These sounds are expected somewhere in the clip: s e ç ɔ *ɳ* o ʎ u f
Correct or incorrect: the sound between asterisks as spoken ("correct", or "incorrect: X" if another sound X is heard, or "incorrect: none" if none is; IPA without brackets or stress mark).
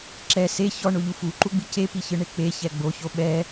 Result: correct